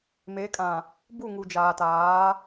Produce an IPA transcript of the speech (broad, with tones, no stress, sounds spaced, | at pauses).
m e˨˦ kʼ ã˨ | b u˦˨ ŋ u˨ d͡ʒ aː˨ t aː˨˦